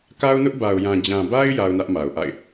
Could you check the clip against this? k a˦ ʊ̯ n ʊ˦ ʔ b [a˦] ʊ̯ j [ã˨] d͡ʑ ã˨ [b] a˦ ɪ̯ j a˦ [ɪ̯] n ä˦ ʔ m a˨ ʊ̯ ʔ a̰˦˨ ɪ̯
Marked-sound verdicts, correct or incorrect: incorrect: a˨, correct, correct, incorrect: ʊ̯

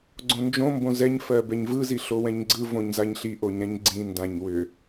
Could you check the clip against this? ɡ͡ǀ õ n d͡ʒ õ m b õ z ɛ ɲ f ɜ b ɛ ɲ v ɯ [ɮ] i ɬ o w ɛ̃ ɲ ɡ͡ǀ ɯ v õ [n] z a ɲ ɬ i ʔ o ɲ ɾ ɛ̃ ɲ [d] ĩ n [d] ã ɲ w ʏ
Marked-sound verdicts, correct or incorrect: incorrect: z, incorrect: ɲ, incorrect: ɡ͡ǀ, correct

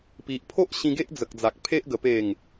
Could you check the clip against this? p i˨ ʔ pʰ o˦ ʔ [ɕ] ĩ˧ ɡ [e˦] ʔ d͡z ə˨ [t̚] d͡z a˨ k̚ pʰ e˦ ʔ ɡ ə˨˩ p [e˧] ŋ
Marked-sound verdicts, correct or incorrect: correct, correct, incorrect: k̚, incorrect: e˨˩

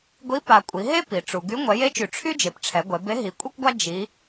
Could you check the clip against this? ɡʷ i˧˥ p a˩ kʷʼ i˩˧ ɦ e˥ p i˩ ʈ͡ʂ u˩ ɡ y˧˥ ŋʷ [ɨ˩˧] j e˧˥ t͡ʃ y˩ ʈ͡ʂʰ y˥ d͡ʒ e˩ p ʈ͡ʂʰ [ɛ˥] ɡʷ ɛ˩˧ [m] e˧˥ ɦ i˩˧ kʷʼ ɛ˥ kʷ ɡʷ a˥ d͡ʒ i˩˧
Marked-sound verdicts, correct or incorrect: incorrect: ɛ˩˧, incorrect: ɛ˩˧, incorrect: b

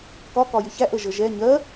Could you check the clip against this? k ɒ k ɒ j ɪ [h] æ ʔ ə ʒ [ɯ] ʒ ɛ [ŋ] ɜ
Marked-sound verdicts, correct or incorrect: incorrect: ç, incorrect: ə, incorrect: ɲ

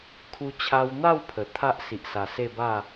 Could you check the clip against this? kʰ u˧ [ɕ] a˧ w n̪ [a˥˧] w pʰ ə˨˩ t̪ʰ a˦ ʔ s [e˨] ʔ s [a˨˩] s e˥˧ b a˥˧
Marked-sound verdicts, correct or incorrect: incorrect: t͡ɕʰ, correct, incorrect: i˨, correct

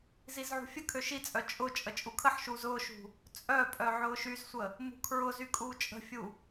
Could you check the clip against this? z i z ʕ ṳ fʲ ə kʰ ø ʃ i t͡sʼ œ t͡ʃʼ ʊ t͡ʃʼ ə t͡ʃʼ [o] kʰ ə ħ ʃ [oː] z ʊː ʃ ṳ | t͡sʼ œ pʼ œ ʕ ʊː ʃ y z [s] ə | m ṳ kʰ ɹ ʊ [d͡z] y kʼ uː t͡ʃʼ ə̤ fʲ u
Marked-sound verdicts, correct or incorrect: incorrect: u, incorrect: uː, incorrect: sʷ, incorrect: z

